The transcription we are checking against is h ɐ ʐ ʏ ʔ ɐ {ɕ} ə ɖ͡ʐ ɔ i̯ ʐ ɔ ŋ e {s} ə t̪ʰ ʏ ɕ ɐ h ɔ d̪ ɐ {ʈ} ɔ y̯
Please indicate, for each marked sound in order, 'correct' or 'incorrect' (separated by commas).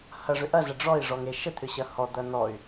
incorrect, incorrect, incorrect